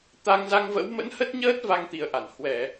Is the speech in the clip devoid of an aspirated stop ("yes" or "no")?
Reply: yes